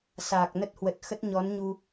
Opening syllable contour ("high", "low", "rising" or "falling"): low